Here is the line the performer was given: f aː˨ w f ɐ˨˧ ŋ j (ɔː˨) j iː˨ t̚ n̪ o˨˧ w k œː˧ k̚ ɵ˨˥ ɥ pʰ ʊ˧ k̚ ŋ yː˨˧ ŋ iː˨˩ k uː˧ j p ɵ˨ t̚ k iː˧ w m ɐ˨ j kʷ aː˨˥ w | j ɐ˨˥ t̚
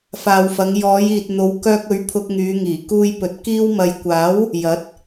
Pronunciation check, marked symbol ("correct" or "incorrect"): incorrect